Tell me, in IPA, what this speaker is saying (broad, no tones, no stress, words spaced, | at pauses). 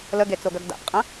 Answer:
ləɡet͡soɡœɡ da̰pqʼə̃